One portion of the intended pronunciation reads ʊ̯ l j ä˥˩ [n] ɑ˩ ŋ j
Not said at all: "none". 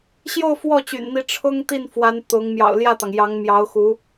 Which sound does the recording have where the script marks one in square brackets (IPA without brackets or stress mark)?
t̪